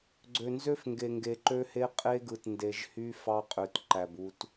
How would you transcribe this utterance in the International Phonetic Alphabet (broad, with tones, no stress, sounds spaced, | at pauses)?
ɡ͡ǀ ø˨ n z ø˦ f ŋ ɡ e˨ ŋ ɡ e˨ ǃ ø˦ h e˦ qʼ e˦ ɡ ɯ˨ t n d e˨ ʒ h y˦ f ɑ˦ qʼ ø˨ t ǃ æ˨ b u˨ t